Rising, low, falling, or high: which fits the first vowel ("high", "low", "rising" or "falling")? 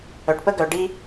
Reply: low